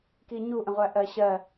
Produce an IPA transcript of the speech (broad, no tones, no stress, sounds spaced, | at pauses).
k i ɲ u ʔ ə̃ ʁʷ æ ʔ ɜ ɕ ɜ